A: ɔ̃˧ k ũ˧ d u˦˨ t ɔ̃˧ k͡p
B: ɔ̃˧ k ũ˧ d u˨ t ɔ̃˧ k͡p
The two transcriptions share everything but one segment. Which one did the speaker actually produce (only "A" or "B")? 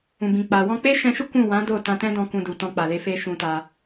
B